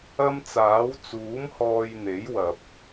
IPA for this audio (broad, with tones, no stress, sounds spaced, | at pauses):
ɐ˥ m t͡s aː˨˥ w t͡s uː˨˥ m h ɔː˧ j n̪ e˨˥ j w ɐ˨ p̚